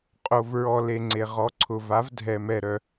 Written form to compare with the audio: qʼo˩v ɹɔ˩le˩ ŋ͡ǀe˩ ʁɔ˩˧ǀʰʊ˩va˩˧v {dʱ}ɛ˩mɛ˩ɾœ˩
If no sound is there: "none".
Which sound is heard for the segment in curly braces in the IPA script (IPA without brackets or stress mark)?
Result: dʱ